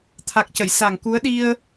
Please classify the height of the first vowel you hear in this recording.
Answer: low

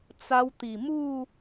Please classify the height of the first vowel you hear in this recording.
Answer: low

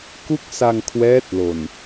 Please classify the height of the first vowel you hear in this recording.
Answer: high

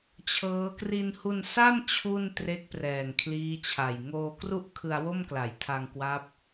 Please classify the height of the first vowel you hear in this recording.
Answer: mid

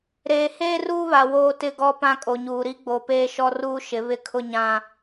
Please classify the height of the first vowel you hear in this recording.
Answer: mid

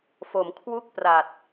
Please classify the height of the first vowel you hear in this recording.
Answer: mid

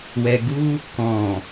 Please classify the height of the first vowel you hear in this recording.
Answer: mid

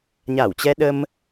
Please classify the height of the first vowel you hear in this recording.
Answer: low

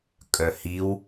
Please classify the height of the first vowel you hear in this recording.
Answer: mid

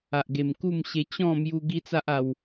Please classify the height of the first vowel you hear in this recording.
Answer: low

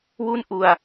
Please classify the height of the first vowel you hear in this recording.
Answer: high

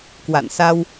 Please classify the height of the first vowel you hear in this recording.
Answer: low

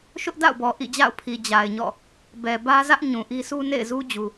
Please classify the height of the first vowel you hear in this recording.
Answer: high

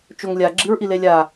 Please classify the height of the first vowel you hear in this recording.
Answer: mid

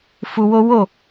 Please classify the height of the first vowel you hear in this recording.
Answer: high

